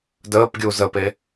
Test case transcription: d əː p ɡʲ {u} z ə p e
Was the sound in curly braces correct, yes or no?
yes